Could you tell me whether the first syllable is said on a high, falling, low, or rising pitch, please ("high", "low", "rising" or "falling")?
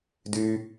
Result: high